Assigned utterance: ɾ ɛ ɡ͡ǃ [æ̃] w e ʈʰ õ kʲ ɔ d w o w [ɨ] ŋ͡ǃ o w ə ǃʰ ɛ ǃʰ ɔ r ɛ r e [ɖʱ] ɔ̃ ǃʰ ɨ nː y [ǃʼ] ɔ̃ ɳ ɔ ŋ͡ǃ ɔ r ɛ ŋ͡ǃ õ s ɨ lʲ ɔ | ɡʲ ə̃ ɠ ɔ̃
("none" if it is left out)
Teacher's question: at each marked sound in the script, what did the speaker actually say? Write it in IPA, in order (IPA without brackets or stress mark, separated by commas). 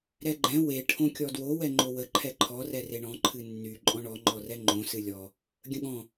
ɛ̃, ɛ, ɳ, ǃʼ